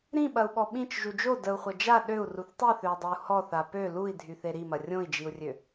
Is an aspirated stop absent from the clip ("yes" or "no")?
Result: yes